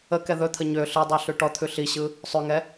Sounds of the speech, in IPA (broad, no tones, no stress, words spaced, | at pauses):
ə kɛðɵt̪ʰə ɲø ɬɯdˤø ɬʉʈɔt̪ʰʉ ɬiɕɯ | sˤʉŋɛ